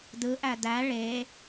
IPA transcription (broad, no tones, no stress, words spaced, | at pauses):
dɯʔæ dæ ɭe